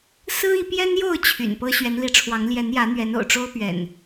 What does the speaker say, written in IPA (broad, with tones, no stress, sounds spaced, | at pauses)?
s ɹ̩˦ i˨˦ p j ɛ˦ n j o˥˨ ʊ̯ t͡ɕʰ y̰˨˩ n p ɤ˦ ɕ ɥ ɛ˨˦ n l i˨˦ ʈ͡ʂʰ w ɑ˨˦ ŋ l j ɛ˨˦ n j ä˨˦ n̪ ɥ ɛ˨˦ n o̰˨˩ ʊ̯ ʈ͡ʂ o˦ ʊ̯ p ɥ ɛ̰˨˩ n